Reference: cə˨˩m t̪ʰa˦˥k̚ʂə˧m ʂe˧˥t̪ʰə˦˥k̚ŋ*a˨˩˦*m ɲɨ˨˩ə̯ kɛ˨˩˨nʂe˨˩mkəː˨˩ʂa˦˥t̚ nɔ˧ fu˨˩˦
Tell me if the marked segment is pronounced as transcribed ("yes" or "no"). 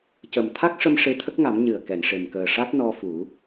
yes